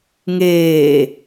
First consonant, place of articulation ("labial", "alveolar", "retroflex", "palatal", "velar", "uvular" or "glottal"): velar